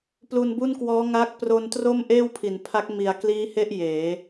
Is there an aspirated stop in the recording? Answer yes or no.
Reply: yes